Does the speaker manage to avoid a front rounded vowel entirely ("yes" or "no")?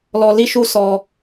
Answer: yes